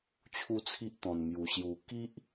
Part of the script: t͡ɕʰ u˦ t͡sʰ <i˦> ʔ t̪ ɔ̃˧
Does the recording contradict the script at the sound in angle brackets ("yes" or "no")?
no